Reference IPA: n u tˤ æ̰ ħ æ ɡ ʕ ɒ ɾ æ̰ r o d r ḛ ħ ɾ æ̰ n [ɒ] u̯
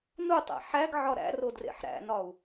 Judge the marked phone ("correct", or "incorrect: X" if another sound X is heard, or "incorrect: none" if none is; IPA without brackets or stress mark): correct